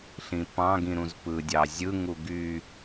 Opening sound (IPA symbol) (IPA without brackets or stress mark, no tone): ɬ